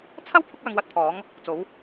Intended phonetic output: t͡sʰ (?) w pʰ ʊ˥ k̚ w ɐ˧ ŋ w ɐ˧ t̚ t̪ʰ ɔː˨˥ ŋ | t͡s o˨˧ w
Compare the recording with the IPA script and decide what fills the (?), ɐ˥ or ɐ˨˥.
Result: ɐ˥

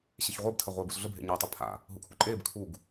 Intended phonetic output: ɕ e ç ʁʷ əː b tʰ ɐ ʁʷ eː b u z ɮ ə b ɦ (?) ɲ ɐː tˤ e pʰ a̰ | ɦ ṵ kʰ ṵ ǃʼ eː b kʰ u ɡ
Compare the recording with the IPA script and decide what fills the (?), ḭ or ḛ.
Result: ḛ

